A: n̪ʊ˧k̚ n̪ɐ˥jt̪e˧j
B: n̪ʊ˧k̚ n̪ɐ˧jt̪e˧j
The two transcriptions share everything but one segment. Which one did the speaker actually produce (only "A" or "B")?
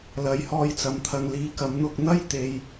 A